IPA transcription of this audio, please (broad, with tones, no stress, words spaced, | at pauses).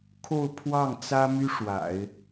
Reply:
kʰo˥˧ʊ̯ pʰwɑ˥˩ŋt͡sä˥my˥ ʂwa̰˨˩˦ɪ̯